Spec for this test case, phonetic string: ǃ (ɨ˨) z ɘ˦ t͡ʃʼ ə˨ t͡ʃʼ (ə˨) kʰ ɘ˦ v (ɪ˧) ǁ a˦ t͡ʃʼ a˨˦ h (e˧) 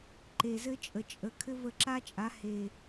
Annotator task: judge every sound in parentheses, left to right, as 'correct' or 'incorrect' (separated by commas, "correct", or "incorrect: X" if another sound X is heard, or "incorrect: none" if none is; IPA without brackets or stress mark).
incorrect: e˨, correct, incorrect: ə˧, incorrect: e˨